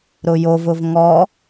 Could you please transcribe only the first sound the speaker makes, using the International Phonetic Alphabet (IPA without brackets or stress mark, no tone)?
ɾ